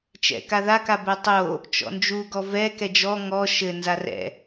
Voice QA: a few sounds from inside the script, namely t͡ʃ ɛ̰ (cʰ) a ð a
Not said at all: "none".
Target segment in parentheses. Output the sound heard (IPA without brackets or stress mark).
k